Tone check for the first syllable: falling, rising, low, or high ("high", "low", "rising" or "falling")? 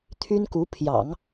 high